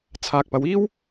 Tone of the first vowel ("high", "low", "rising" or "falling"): low